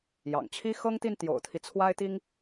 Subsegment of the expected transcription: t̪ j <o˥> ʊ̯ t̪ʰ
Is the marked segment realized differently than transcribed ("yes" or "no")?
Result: yes